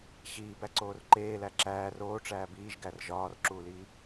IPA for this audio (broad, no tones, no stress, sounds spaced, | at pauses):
ɕ iː b æ ǀ oː r ǃ eː l æ ǁ æː r oː ʈ͡ʂ æː b iː ʒ ɡ æ r ʒ ɒː r ǁ uː l iː